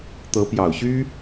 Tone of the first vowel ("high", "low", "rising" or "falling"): rising